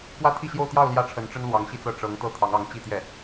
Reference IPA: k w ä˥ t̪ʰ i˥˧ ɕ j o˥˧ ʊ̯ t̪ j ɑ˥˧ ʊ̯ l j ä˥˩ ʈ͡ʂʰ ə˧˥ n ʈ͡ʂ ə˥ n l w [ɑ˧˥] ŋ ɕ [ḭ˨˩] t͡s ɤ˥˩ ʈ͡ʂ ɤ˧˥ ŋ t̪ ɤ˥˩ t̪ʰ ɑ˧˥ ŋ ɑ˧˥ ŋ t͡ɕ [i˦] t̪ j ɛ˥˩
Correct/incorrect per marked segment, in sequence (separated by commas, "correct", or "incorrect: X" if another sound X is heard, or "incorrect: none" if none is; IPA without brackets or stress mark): correct, incorrect: i˥˧, incorrect: i˥˧